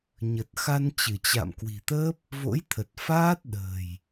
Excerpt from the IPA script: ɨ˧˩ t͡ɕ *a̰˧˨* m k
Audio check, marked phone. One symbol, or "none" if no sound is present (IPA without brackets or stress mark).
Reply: a̰˧˨